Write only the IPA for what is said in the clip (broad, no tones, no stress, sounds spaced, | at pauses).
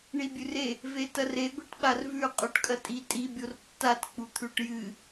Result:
ɳ i bʲ ʉ r e | v e t ɐ r e ɡʷ i ʈ ɓ a r v ʉ qʼ o ʈ kʼ ɐ tʼ i tʼ i bʲ o r tː a t k͡p u t̪ʰ ʉ ʈ j ɨ